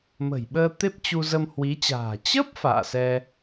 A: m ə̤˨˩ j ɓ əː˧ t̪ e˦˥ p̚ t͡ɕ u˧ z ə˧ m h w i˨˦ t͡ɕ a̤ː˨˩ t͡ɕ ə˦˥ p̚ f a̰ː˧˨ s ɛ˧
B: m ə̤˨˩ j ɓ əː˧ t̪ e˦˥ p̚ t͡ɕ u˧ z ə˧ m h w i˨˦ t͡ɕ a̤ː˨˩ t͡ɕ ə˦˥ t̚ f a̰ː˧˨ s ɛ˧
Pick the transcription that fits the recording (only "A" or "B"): A